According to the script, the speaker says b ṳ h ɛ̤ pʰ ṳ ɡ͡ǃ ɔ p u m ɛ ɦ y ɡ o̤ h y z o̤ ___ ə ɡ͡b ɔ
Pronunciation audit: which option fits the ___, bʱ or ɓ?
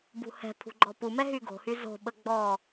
ɓ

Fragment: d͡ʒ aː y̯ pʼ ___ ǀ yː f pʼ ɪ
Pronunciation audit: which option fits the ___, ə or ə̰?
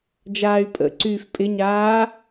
ə̰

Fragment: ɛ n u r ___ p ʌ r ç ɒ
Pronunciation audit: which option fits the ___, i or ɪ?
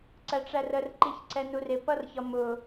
ɪ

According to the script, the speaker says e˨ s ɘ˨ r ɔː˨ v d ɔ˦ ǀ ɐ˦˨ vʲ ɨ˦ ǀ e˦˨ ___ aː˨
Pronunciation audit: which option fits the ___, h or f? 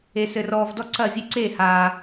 h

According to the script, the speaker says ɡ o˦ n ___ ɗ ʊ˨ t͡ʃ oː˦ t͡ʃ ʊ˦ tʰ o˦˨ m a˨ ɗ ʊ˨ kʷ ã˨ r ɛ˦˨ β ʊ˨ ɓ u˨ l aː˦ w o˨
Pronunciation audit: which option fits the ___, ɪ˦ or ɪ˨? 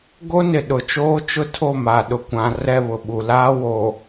ɪ˨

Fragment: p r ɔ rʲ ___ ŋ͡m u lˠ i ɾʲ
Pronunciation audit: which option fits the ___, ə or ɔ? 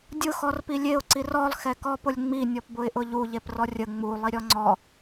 ə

